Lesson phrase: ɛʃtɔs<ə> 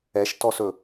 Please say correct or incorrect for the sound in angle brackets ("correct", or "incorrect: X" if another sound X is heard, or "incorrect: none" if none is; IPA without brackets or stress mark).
incorrect: ɵ